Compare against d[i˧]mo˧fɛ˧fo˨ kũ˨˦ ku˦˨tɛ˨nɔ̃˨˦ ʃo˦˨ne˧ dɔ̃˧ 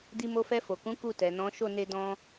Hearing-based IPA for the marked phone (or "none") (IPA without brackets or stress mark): i˧